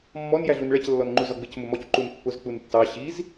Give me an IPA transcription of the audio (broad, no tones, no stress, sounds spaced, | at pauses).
mː ɔ n j æ ɮ u n ɭ ɛ c lː ɔ n ŋ͡ǃ u z ɒ ɡ͡b ɪ c m ʊ m ɔ c ǃ u n pː ʊ z k͡p u n tː ɑ ɕ i z